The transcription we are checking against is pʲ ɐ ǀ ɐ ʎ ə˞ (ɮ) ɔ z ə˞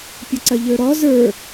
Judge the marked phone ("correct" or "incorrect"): incorrect